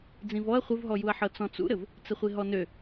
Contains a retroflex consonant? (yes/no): no